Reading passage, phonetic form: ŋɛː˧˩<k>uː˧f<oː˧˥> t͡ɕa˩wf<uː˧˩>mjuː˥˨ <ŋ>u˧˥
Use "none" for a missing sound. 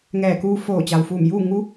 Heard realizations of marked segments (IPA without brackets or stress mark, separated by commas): k, oː˧˩, uː˧˩, ŋ